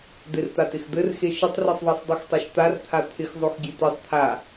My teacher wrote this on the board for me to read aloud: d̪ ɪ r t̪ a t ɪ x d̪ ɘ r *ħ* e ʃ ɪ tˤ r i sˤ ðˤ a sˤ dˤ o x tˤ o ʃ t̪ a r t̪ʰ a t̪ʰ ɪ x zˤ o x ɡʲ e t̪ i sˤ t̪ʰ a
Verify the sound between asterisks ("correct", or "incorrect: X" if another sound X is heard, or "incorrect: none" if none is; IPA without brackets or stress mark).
incorrect: x